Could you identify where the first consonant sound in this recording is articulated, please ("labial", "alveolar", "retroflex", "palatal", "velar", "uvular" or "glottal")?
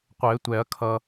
uvular